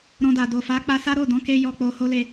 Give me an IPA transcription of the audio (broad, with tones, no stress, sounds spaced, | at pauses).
ɾ ɔ̃˧ d a˨ d o˨ f a˨˦ k͡p a˧ s a˦ ɾ o˦˨ d ɔ̃˨˦ k e˧ j ɔ˧ k͡p o˧ h o˦ l e˧